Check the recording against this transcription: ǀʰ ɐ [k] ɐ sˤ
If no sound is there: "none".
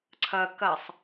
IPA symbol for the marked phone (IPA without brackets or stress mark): k